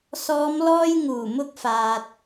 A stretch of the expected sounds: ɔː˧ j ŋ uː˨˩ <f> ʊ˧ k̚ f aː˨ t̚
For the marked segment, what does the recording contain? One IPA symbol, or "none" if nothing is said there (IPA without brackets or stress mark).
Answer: m